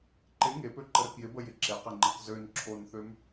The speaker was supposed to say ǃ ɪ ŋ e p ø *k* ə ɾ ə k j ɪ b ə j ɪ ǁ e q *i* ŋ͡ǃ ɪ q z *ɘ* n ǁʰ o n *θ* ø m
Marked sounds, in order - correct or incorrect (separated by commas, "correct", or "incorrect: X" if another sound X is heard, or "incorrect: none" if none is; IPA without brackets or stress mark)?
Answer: incorrect: ǃ, incorrect: ɪ, incorrect: ø, correct